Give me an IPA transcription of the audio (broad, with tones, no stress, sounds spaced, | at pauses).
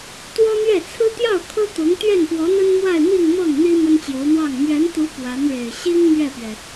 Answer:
t̪ w ɔ˥ n̪ ɥ ɛ˥˩ t͡sʰ ɹ̩˥ t̪ j ɑ˥˩ ʊ̯ kʰ ɤ˥ t̪ ʊ˧˥ ŋ t̪ ɥ ɛ˥˩ n p w ɔ˧˥ n̪ ə˥ n m w a˥˧ ɪ̯ m i˥˧ ŋ m ɤ˥˩ ŋ n̪ i˥ m ə˥ n t͡ɕ j o˧˥ ʊ̯ n̪ w ɑ˥˩ ŋ m ɥ ɛ˧˥ n t̪ u˧˥ p w a˧˥ n ɻ e˨˩ ɪ̯ ɕ i˥ ŋ m ɥ ɛ˥˩ p ɥ ɛ˩